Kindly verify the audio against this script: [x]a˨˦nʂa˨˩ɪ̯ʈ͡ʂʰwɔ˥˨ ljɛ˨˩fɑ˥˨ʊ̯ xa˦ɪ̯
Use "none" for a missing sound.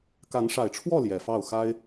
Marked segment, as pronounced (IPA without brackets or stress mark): k